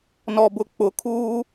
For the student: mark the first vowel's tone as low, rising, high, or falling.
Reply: low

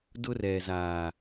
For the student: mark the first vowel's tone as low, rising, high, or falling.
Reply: high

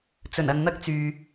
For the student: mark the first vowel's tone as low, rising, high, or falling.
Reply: low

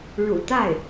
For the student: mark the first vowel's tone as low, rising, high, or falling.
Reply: low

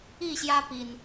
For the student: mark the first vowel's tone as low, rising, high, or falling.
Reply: falling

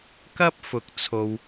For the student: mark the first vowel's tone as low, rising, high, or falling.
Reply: high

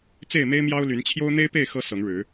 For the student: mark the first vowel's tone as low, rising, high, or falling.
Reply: falling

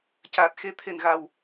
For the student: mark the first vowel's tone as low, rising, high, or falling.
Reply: low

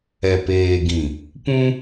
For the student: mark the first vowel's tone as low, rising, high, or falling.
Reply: low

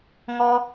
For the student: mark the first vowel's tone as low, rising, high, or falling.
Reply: high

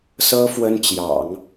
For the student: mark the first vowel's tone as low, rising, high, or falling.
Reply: high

